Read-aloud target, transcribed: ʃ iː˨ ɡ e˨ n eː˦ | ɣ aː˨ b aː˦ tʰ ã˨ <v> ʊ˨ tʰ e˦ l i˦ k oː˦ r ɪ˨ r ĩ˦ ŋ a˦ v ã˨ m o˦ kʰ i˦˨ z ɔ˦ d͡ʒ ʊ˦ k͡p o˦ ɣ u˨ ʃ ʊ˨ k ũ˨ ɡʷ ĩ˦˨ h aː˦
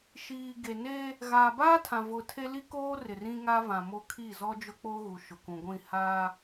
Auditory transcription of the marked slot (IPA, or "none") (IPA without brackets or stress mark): v